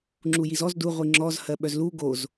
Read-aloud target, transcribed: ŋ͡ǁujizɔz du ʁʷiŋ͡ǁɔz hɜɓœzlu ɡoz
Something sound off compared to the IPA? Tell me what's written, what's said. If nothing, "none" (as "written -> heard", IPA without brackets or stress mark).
none